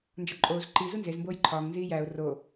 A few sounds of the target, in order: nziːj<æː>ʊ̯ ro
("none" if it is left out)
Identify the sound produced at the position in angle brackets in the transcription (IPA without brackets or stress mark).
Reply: æː